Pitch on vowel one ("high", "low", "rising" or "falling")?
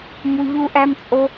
high